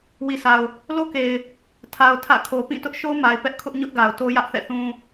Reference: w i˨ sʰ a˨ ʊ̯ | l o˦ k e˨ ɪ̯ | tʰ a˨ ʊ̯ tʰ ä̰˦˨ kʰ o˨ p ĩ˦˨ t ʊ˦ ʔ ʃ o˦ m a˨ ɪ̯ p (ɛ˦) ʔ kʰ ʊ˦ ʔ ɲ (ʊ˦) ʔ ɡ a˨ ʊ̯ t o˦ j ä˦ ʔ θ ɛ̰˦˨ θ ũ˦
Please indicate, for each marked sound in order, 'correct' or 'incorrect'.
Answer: correct, correct

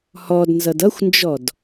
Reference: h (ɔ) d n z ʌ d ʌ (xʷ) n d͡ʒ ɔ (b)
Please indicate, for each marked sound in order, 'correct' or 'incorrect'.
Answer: correct, correct, incorrect

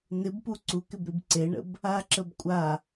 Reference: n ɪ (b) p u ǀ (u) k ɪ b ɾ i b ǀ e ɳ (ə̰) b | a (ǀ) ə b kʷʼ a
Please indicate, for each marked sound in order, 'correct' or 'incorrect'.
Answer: correct, correct, correct, incorrect

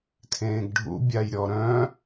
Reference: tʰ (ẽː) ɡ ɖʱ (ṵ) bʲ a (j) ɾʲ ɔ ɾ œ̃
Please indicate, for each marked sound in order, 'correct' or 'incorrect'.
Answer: correct, correct, correct

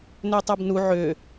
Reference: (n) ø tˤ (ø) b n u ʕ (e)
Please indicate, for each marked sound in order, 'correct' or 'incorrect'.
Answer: correct, correct, incorrect

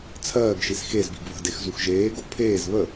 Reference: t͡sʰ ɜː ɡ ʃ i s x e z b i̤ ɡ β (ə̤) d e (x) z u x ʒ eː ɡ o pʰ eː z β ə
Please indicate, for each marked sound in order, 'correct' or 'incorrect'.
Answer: correct, correct

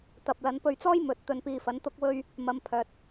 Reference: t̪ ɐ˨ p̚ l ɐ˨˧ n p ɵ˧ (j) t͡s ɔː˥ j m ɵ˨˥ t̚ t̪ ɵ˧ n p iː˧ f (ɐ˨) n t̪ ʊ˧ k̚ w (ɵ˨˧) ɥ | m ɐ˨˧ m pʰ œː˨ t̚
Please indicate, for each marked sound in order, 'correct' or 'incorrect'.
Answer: incorrect, incorrect, incorrect

